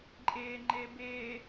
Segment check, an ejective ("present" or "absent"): present